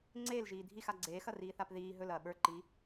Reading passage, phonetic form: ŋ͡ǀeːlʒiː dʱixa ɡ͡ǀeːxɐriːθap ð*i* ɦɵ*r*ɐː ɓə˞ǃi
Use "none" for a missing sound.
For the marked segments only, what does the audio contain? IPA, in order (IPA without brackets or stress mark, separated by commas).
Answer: iː, l